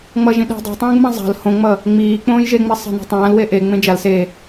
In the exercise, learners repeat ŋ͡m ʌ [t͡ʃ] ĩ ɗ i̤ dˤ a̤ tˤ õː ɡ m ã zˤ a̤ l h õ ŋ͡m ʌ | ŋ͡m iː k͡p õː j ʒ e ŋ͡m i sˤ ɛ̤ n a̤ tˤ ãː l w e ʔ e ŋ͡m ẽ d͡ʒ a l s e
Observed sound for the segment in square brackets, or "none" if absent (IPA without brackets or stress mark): ʒ